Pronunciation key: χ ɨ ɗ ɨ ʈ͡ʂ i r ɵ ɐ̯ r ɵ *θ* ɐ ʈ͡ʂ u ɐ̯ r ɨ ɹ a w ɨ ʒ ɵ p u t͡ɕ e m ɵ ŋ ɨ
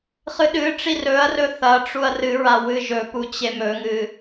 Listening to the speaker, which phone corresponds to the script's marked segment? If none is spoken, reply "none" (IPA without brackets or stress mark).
θ